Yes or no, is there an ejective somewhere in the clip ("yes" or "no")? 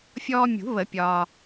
no